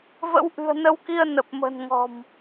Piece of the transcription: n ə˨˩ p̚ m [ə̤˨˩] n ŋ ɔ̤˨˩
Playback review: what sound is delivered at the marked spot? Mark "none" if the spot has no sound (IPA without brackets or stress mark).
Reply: ə̤˨˩